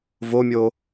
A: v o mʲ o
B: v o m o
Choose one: A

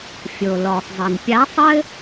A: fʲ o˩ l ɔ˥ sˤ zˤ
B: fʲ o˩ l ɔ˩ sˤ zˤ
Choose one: B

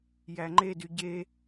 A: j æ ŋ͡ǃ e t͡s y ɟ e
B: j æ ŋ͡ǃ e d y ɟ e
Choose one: B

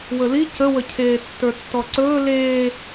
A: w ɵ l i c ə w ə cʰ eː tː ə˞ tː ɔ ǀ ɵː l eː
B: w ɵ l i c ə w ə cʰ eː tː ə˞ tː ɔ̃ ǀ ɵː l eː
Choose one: A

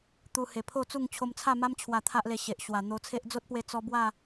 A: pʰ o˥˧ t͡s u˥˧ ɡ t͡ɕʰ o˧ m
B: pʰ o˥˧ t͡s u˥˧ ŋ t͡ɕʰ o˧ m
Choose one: B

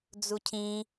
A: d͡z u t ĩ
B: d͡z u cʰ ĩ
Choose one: B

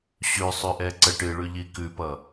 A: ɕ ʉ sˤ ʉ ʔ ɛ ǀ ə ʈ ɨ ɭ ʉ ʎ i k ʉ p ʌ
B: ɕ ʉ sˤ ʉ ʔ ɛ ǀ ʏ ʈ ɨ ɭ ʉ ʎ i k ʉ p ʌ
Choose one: A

